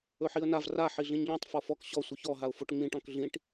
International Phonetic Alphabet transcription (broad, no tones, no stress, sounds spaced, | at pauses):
ɵ ħ i ə̯ n a v r a ħ i ɮ ĩ ɲ ʎ ɔ̃ tˤ f ɔ f ɔ k ɕ ɔ sʷ i ç ɔ ɦ a ʊ̯ f o ʈ ŋ͡m ĩ ʈ ɔ̃ k ɮ ĩ ʈ